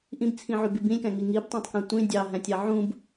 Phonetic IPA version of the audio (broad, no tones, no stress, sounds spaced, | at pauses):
ʔ ĩ b t͡sʰ ĩ ʕ y b i b ĩ lʲ k æ̃ ŋ i ŋ i b tˤ ɑ̃ tˤ k æ̃ tʷ ĩ dʲ ɑ ɦ æ̃ tʲ ɑ ʕ ũ b